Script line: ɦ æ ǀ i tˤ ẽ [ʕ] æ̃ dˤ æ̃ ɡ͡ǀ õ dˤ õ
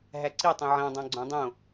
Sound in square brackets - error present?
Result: no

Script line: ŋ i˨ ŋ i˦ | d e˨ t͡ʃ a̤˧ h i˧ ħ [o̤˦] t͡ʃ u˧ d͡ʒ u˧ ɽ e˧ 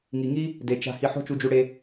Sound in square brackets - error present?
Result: no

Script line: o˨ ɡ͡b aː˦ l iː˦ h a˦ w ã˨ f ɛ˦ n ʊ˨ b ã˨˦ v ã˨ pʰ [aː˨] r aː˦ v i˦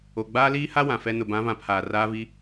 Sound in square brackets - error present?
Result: no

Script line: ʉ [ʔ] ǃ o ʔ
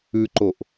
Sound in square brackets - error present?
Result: yes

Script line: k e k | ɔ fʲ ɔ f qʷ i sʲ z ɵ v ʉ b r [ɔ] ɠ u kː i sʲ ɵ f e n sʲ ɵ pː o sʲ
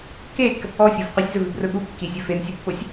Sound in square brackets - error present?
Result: yes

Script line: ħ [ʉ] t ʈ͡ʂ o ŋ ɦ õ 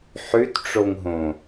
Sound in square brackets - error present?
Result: no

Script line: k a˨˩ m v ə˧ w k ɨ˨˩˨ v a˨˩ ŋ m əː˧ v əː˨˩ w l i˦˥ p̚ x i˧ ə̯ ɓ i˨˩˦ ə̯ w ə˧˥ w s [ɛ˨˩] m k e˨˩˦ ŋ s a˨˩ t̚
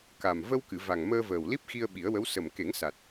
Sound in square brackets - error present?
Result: yes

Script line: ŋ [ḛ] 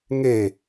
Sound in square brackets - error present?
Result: yes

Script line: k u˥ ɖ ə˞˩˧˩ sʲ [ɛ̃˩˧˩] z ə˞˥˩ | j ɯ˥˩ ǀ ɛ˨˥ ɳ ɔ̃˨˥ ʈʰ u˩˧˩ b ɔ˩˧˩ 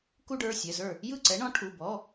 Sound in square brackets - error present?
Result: yes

